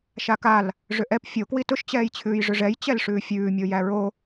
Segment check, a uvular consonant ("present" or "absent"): absent